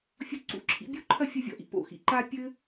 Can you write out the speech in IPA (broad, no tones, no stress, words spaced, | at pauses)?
fʲoǀṵǁʰḭ bʲuǃʰɐ fʲɐvʲɔ̰ʔḭ po̰xḭ ǃa pʲɘ